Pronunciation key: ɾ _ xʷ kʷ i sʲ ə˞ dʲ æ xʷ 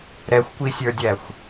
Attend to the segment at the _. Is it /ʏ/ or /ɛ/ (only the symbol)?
ɛ